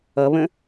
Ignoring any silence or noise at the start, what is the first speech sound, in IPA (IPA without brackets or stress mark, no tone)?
ʌ